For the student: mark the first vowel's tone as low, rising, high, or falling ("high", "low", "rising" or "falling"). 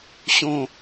low